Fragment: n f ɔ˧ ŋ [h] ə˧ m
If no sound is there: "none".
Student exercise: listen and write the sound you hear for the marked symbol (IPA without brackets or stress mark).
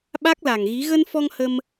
h